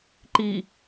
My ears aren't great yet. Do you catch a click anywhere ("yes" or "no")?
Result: yes